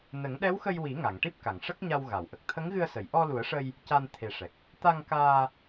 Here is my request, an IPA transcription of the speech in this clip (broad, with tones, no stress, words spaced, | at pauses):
nə˨˩˦ŋɗɛ˧˥wxə˧jwi˨˩˦ ŋa˨˩˨ŋʈi˦˥p̚ka˨˩˨ŋ ʂə˦˥k̚ɲa˧wɣa˨˩˨wʔə˨˩k̚ t̪ʰə˧˥ŋɣɨ˧ə̯sə˨˩˨j ʔɔ˧lu˨˩˦ə̯ʂə˧j | ca˧nt̪ʰe˨˩ʂɛ˨˩k̚ | t̪a˧ŋkaː˧